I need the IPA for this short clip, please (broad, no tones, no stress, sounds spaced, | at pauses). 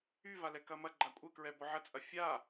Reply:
y v a l ɛ k ɐ m ɐ ɡ͡ǃ a kʷʼ ə k ɹ ɛ b ɔ ʕ ɐ t͡sʼ ɐ fʲ a